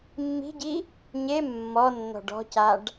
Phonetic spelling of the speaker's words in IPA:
mː i̤ ɟ i | ɲ e mː ɔ nː ɔ̤ ɖ ɔ̤ c a ɖ

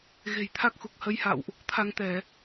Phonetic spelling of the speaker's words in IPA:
ɣ e̤˨˩ j t̪ʰ a˦˥ k̚ x u˨˩ k̚ h ə˨˦ j h a̰˧˨ w ʔ | t̪ʰ a˧ ŋ t̪ ɛ˧˩˨

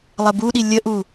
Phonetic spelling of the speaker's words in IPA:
lˠ ə b u ɗ i lʲ ə ʔ u

